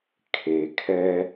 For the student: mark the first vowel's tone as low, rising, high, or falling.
low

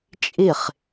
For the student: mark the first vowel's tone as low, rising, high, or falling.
falling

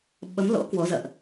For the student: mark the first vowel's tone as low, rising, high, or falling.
rising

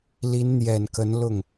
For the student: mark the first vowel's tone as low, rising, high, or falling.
rising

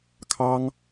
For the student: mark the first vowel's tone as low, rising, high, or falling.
high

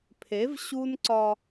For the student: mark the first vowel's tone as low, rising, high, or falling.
rising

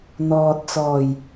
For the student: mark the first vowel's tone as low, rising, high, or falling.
low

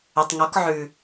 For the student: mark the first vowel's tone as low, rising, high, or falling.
low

